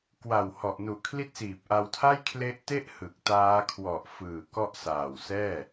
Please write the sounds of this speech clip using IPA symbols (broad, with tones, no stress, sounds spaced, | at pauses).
k w a˨˩ w h ɔ˨˩ ʔ n u˨˩ ʔ kʰ l i˦˥ t̚ s iː˨˩ p̚ ʔ a˧ w tʰ a˥˩ j kʰ l e˦˥ ʔ t e˥˩ ʔ h ɯ˨˩ k̚ t aː˦˥ kʰ w ɔ˨˩ ʔ f ɯː˨˩ k ɔ˦˥ ʔ s aː˨˩ w s ɛː˥˩